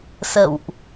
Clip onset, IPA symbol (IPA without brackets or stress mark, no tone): s